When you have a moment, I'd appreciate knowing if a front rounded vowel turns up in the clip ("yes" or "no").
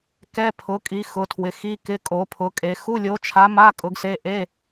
no